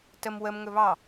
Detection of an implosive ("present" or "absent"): absent